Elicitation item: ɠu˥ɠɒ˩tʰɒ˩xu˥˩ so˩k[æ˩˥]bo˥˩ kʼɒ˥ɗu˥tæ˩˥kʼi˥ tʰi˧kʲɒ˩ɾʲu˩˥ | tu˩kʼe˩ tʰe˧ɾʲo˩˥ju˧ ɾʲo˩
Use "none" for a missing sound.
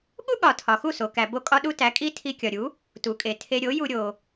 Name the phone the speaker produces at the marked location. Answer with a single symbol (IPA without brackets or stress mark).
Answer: æ˩